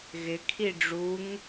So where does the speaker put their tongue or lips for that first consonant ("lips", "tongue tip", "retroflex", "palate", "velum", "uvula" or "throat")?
velum